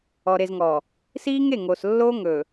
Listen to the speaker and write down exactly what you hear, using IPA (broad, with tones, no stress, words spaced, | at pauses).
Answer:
ɔ˨ɾe˨zŋɔː˨ | siː˦ŋe˦˨ŋoː˨s lːoː˦ ŋɵː˨